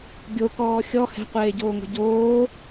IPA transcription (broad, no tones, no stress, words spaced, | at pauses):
ɡʲokɔː xʲɔ hɛ̤qʷeːɟoːŋʷɛ̤ ɟoː